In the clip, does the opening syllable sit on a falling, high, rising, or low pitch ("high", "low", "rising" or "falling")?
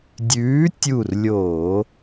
rising